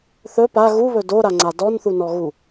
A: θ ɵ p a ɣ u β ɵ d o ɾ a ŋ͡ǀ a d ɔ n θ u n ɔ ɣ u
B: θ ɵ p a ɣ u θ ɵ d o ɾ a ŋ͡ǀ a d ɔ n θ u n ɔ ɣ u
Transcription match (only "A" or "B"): A